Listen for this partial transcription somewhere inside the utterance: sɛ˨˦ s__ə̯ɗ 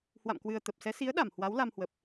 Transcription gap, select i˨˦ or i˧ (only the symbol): i˨˦